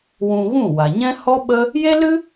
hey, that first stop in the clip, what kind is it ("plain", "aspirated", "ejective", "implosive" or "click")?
implosive